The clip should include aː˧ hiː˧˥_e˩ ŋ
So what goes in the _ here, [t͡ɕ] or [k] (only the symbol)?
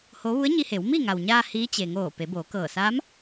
t͡ɕ